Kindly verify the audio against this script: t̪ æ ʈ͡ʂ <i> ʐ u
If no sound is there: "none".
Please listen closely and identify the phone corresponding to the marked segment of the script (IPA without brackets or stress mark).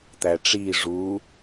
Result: i